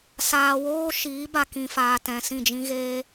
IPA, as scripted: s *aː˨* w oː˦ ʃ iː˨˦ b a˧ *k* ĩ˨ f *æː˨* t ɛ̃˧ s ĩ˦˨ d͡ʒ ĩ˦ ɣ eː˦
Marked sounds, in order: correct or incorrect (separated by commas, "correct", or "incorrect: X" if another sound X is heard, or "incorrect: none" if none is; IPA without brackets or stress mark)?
correct, correct, incorrect: aː˨